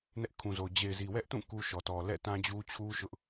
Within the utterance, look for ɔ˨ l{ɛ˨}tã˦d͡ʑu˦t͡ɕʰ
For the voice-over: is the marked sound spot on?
no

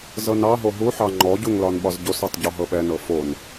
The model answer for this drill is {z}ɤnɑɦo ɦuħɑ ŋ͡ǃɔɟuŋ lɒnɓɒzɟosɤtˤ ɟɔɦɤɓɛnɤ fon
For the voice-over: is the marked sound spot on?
yes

